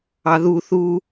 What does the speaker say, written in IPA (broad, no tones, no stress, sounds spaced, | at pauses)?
ɑ ð u θ u